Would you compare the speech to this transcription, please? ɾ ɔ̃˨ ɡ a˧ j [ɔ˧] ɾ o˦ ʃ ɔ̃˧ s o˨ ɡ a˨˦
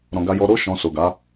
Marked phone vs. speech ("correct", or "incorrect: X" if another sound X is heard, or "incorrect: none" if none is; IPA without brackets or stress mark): correct